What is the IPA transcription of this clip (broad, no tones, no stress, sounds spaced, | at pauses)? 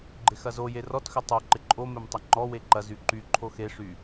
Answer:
ɡ͡ǃ ɪ x ɐ z o j e r ɔ t x ʏ tˤ o ǃ ɪ ǃʼ o m e m tˤ ɪ ŋ͡ǃ ɔ w e ǃ ɐ z y ǃ y ǃʰ o x e ʂ y